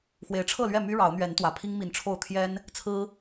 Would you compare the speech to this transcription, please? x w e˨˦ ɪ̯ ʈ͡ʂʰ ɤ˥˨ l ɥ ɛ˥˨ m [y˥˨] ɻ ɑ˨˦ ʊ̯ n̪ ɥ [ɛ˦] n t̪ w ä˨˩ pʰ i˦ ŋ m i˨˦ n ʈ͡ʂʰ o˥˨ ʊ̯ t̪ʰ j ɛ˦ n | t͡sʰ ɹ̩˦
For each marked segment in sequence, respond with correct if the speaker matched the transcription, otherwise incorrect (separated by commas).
incorrect, incorrect